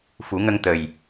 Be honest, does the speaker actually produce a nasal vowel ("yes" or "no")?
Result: no